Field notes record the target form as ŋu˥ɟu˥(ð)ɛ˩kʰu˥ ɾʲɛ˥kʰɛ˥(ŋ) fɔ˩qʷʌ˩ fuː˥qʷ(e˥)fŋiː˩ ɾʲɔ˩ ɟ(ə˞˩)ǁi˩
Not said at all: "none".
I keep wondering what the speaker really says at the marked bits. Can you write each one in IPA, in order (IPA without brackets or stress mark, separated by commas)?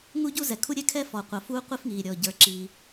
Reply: z, none, i˥, ə˞˩